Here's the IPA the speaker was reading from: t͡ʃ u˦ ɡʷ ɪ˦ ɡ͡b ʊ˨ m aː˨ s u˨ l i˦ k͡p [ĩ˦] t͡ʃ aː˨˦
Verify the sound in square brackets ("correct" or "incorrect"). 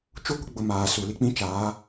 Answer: correct